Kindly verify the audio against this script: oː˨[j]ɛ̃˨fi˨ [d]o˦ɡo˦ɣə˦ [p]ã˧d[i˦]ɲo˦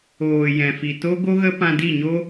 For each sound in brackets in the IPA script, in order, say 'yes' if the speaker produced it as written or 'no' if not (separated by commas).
yes, no, yes, no